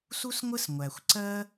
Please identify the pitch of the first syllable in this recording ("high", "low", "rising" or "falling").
high